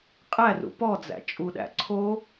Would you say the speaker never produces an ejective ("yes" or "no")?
no